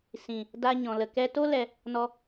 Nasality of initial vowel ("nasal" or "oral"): nasal